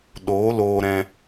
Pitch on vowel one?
rising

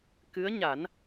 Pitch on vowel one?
rising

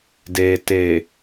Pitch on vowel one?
low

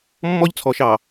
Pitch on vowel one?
high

